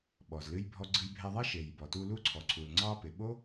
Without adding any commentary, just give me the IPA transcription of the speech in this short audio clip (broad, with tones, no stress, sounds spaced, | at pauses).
ɓ ɔ˩ z l ɨ˧ j bʱ ɔ˧ ɡ͡ǀ ɨ˧ j bʱ ɛ˧ ðˤ ɛ˥ ʃ e˩ j b ɔ˩ t u˧ l u˧ ǀʰ ɔ˩ ǀʰ u˩ l ŋ͡ǀ ɑ˧ p ɪ˩ ɓ o˥